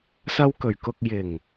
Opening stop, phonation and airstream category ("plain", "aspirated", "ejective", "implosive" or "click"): plain